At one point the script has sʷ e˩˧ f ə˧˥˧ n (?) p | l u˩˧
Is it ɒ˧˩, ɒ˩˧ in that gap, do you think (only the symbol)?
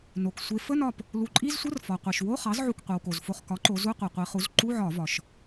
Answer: ɒ˧˩